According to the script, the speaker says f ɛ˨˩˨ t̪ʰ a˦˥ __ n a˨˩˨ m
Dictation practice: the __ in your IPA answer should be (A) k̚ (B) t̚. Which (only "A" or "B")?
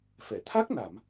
A